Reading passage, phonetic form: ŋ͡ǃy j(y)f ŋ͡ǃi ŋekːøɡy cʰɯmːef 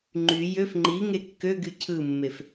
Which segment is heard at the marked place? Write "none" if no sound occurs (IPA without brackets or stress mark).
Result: ø